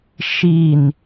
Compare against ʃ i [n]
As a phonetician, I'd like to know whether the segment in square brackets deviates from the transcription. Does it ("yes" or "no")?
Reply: no